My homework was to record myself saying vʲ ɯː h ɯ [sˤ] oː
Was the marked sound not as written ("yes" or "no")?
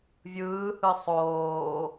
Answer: no